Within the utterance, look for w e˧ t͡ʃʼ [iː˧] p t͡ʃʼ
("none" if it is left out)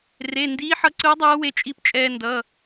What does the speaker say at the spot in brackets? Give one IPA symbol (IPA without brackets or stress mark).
i˧